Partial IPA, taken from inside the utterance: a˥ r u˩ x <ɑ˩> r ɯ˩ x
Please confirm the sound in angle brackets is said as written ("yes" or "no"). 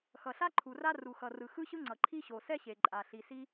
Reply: no